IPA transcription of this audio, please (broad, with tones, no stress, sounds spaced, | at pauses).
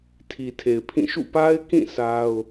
tʰ i˨ tʰ e˨ ɪ̯ pʰ ĩ˦˨ ʃ ṵ˦˨ p a˦ ɪ̯ k ĩ˦˨ sʰ a˦ ʊ̯